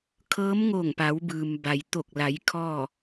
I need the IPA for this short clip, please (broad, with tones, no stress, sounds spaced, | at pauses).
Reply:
kʰ ɤː˧˥ m ŋ o˧˩ ŋ p a˩˧ w b ɯː˩ m b a˩ j t̪ o˧˩ k̚ l a˩˧ j kʰ ɔː˥˨